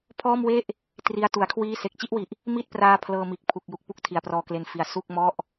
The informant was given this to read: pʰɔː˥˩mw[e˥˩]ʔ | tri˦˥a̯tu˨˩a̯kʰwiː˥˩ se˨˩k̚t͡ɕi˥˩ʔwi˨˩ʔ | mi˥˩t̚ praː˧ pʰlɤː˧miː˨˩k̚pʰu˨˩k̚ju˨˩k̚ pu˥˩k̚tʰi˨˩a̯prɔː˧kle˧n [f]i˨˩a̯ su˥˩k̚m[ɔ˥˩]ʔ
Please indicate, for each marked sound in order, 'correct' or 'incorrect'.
correct, correct, correct

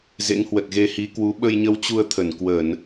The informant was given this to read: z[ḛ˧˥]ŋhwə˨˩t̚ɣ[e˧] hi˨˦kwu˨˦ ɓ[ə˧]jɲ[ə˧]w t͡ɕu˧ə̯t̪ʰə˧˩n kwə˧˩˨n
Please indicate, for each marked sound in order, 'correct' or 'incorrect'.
correct, correct, correct, correct

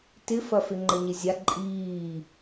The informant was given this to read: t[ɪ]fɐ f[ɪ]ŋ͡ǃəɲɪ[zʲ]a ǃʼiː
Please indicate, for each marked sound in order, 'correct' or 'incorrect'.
correct, correct, correct

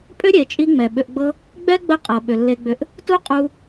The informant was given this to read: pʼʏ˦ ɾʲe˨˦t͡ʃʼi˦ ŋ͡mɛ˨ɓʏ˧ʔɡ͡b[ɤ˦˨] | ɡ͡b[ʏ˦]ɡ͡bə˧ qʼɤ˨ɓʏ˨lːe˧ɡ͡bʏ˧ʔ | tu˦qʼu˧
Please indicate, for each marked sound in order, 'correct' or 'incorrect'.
incorrect: ɤ˦, incorrect: ɛ˦

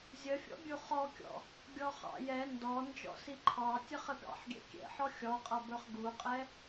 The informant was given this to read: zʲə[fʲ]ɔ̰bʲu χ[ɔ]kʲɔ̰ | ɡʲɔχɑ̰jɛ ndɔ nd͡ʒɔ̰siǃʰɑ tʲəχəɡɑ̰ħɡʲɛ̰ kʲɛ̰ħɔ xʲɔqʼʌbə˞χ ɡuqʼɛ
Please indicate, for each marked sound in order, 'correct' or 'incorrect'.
correct, correct

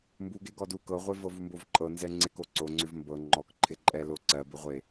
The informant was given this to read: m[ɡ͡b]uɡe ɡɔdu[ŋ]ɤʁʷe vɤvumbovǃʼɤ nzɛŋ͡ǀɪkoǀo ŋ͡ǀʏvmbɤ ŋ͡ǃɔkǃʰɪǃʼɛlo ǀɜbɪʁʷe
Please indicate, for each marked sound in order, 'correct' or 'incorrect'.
incorrect: b, incorrect: k

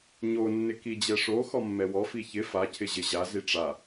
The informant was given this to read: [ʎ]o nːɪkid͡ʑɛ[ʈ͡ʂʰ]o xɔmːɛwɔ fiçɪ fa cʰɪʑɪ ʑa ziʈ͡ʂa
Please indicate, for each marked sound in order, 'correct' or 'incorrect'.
incorrect: ɲ, incorrect: ʂ

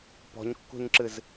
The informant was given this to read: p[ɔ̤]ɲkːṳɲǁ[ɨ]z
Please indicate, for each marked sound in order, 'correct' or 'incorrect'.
correct, correct

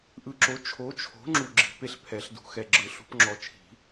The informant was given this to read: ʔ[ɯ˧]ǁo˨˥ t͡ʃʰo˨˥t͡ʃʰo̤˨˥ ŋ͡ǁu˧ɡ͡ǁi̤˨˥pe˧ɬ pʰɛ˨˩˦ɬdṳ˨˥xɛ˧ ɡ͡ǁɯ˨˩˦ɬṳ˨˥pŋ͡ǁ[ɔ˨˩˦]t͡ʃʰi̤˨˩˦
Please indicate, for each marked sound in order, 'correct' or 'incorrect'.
correct, incorrect: ɔ˧

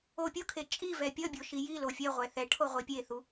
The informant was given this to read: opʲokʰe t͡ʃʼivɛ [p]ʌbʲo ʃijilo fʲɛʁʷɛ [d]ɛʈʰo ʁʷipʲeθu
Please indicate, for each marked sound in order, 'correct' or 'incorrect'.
incorrect: pʲ, incorrect: θ

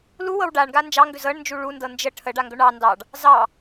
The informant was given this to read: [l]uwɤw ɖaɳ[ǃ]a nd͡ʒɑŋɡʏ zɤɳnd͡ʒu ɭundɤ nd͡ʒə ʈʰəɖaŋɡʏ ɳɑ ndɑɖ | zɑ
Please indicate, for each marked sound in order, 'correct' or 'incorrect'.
correct, incorrect: ɡ

